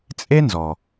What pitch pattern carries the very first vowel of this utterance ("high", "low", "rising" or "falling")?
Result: high